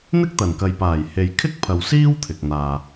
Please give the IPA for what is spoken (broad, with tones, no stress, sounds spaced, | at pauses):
n̪ ɪ˥ k̚ t̪ ɐ˨˩ n k ɐ˨ j p aː˨˩ j h e˨ j kʰ ɪ˥ k̚ pʰ ɐ˨ w s iː˥ w t̪ʰ ɪ˨ k̚ n̪ aː˨